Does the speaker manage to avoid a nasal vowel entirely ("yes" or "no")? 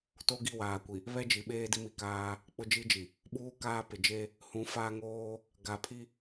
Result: no